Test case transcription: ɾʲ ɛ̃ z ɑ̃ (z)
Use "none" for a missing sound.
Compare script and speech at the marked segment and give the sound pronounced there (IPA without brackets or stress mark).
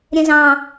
none